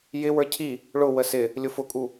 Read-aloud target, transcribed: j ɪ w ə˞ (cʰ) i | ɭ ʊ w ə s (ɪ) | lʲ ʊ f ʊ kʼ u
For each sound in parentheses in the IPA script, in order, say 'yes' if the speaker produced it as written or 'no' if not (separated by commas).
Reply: yes, yes